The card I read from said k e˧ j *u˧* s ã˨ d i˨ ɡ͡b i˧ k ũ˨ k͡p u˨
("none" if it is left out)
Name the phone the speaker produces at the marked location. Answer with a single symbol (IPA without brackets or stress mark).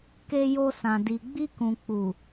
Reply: o˧